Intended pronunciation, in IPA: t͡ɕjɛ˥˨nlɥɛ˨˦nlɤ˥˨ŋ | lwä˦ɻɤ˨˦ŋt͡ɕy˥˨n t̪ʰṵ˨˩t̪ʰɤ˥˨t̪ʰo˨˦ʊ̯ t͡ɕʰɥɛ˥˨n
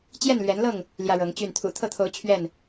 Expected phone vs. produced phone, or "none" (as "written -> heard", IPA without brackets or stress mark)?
w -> j